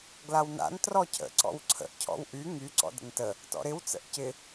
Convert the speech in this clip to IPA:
ɡlawna̰n trɔcʰə̰ ǀɔ̰wǀʰə̰ʔ cʰɔ̰wʔy ŋy ǀɔ̰də̰ntə | tɔ̰ɾɪw t͡sə̰ʔcɪ

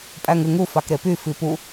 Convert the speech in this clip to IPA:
pʼæŋɯŋu fɑkɾepy fipu

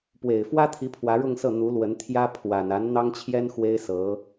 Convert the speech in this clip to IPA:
pwe˨˩ɪ̯fwä˥t̪ʰi˧˥ pʰwä˧˥ɻʊ˥˧ŋsɤ˥˩ n̪u˧˥ lwə˧˥nt̪ʰjä˥ pʰwa˨˩n a˧˥nn̪ɑ˥ŋt͡ɕʰjɛ˥n xwe˥ɪ̯sɤ˧˥

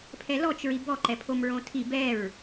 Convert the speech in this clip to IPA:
pʰɛlɔt͡ʃ ɹibɔ ǃɛpʰomɹõtʰi bɛɹ

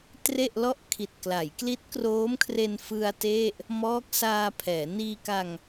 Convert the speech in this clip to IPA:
tre˥˩ʔ lɔ˥˩ʔkʰi˨˩t̚ kla˩˦jkli˦˥t̚kroː˦˥mkʰre˧n fɯ˧a̯ te˥˩ʔ | mɔː˦˥k̚saː˧ pʰɛː˩˦ niː˧ka˧ŋ

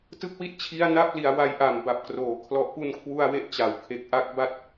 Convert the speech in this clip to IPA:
tɯ˦˥k̚wi˦˥t̚ t͡ɕʰi˦˥a̯na˦˥p̚li˩˦a̯ wa˦˥jʔa˨˩m ba˨˩p̚kroː˩˦ kʰlɔ˨˩ʔpu˧nkʰwu˧a̯ we˥˩ʔt͡ɕa˩˦w kʰe˨˩k̚ʔa˦˥k̚ba˥˩t̚

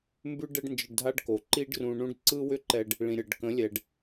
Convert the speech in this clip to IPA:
mbʉ˦ ɖɛ˦ɖnd͡ʒə˧ɖdʱa˦ɖko˨ ǃi˦ɖrũ˧ɳũ˦ɖ ǀɯ˦wʏ˦ǃɛ˧ɖ | ɭĩ˨ɾʲɤ˨ɖ kə̃˨˦ lʲɛ˨ɖ

